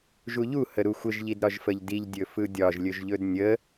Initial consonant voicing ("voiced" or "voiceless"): voiced